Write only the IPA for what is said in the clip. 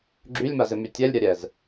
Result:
ɡ͡ǁ y lʲ m a z ɪ m y tʲ ɛ lʲ ɾʲ a ɾʲ ɛ z

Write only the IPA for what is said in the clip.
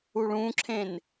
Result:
u ɭ ũ ǁʰ ẽ n

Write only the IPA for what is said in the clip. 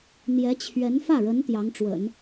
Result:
n̪ j ɛ˧˥ t͡ɕʰ ɥ ɛ˧˥ n f ä˥˩ ɻ ə˧˥ n t̪ j ɑ˧˥ ŋ ʈ͡ʂ w ə̰˨˩˦ n

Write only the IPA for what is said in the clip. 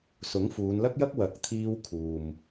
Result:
s ʊ˨˥ ŋ f uː˨˧ n l ɐ˥ k̚ j ɐ˥ k̚ w ɐ˨˥ k̚ t̪ʰ iː˧ w kʰ uː˨ m

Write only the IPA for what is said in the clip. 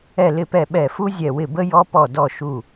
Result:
ɛ˧˩ l ɪ˧˩ p ɛ˧˩ ɓ ɛ˧˩ f u˦ zʲ ɛ˧˩ w ɪ˧˩ b ə˦ j ɔ˦ p ɔ˧˩ d ɔ˧˩ ʃ u˧˩

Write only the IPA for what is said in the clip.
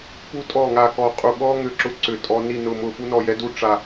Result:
p u˥ tʼ ɔ˥˨ ŋ a˥˨ k ɔ˥˨ qʼ u˥˨ ɠ ɔ˥ ŋ ʏ˥˨ ǁ ʊ˥ ǀ ʏ˥˨ tʼ ɔ˥ n i˥˨ n ʊ˥˨ m ʊ˥˨ f u˥ n ɔ˥˨ j ɛ˥ d u˥ ʈ͡ʂ a˥˨

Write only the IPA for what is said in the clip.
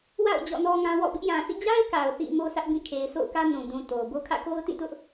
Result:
w a̰˦˨ ʊ̯ d͡ʑ ɔ̰˦˨ n ɔ˦ ŋ ã˦ w ɔ̰˦˨ b ɪ˦ ʔ j ã˨ s ḭ˦˨ d͡ʑ a˦ ɪ̯ k a˨ ʊ̯ θ ḭ˦˨ m o˦ s ä˦ ʔ b ĩ˦˨ kʰ e˨ ɪ̯ sʰ o̰˦˨ ʊ̯ k ä˦ n ũ˨ d ũ˨ t o˨ b o˦ kʰ ä̰˦˨ k o˦ ʊ̯ t ĩ˦˨ t ʊ˦ ʔ

